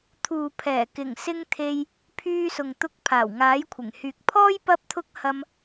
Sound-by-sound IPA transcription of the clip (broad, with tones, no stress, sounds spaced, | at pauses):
t̪ʰ uː˨ pʰ ɛː˨˩ k ɪ˨˩ ŋ s ɪ˧ ŋ t̪ʰ e˧ j | pʰ yː˧ s ʊ˨ ŋ t̪ ʊ˧ k̚ pʰ aː˨˩ w ŋ aː˨˥ j kʷʰ ɪ˨˩ ŋ h yː˨ k̚ pʰ ɔː˥ j p ɐ˧ p̚ t̪ʰ ʊ˧ k̚ h ɐ˧ m